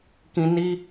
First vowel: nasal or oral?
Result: nasal